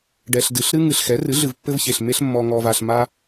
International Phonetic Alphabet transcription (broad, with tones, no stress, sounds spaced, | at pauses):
ɖ ɛ˨ ɬ d ɨ˨ ɬ ɾ ɨ˦ ŋ ɨ˨ ɬ x ɛ˩˥ r ɨ˩˥ ɮ ɨ˨ v pː ɘ˦ v ç e˨ ɬ m e˦ ɬ mː ɔ˨ ŋ ɔ˨ v a˨ ɬ m a˦